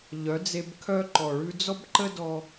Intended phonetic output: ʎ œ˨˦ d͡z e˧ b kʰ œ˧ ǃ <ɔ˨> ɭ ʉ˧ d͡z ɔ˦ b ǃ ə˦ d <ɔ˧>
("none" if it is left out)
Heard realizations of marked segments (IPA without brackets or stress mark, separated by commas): ɔ˨, ɔ˧